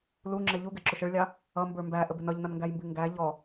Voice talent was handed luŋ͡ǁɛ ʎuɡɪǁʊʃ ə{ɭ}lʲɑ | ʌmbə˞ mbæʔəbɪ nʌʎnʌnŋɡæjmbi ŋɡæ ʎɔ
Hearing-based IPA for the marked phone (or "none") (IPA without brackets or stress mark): ɭ